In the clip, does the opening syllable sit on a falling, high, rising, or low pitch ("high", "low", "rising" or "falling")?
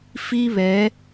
high